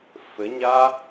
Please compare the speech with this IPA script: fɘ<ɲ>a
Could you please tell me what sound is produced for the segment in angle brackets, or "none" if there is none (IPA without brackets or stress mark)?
ɲ